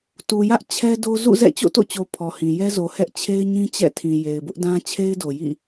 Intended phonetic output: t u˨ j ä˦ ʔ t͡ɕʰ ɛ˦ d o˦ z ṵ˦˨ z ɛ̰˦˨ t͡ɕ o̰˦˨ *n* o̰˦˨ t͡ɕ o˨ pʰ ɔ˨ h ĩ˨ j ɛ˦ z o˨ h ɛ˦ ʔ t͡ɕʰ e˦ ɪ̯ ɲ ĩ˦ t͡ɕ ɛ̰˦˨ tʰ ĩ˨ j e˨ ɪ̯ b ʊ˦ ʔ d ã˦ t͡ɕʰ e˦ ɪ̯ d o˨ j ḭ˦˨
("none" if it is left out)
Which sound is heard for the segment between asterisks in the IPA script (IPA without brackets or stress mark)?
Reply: t